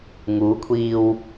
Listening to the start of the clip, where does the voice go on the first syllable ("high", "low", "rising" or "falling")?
rising